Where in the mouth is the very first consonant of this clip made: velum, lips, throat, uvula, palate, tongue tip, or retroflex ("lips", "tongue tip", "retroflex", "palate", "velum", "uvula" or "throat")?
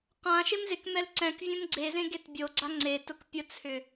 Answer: uvula